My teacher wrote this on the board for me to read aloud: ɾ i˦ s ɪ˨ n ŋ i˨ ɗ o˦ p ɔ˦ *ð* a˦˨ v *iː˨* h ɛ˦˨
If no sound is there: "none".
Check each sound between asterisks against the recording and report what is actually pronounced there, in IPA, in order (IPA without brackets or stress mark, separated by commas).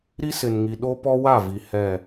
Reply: w, i˨